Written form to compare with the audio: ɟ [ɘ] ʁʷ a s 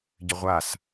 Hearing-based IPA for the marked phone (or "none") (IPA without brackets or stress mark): ɘ